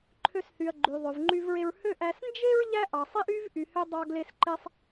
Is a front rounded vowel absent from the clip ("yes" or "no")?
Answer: no